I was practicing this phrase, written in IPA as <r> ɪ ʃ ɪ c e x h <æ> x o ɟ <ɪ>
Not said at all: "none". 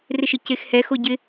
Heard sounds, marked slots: r, ɛ, ɪ

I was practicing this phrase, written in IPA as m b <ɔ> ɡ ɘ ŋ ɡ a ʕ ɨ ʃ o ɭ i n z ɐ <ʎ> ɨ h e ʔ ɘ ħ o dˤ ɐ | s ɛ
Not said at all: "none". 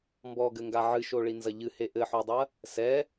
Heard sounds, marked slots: ɔ, ʎ

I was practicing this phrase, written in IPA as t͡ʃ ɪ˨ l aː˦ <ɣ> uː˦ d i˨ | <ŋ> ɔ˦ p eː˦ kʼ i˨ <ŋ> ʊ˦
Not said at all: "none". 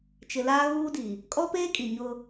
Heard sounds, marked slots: ɣ, kʼ, ɲ

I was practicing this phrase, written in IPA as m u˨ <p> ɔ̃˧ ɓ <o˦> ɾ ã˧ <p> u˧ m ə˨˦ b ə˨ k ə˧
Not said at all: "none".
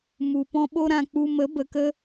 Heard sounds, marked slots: p, o˦, k͡p

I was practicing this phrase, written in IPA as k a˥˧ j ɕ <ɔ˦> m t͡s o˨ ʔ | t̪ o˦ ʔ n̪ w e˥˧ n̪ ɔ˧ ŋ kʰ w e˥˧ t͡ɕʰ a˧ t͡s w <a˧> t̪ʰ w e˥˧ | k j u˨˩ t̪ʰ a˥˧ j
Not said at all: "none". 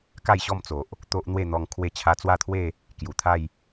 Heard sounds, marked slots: ɔ˥˧, a˥˧

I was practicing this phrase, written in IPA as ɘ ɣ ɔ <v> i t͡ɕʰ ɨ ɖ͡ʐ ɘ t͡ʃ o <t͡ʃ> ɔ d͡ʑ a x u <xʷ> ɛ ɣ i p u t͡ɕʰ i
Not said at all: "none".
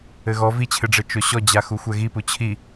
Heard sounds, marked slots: v, ɕ, xʷ

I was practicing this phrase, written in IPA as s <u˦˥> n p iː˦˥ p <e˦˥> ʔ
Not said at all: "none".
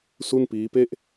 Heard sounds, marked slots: u˥˩, e˥˩

